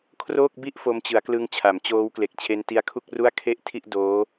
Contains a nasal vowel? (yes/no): no